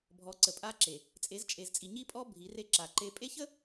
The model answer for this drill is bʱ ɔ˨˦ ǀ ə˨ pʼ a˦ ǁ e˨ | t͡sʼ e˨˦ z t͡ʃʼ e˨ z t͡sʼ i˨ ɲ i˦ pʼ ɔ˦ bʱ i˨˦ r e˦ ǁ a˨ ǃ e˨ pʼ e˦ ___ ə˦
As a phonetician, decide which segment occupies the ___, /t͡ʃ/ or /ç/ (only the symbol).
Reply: ç